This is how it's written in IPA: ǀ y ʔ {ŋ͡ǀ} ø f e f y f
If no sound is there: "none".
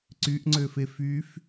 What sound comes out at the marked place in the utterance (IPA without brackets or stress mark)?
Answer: ŋ͡ǀ